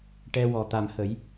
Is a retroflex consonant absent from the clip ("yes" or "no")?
no